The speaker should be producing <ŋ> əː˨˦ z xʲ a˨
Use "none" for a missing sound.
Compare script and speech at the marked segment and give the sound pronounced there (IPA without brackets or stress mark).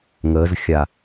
ŋ